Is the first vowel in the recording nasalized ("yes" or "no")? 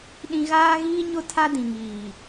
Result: yes